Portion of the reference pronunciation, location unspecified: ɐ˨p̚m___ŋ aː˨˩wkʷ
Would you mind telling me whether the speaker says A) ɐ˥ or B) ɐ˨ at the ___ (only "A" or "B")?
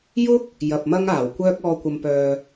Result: A